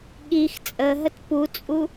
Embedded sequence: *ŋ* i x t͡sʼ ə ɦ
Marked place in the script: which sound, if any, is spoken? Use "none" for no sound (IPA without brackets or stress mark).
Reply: ɠ